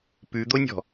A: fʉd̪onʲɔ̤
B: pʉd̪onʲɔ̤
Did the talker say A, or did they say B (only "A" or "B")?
B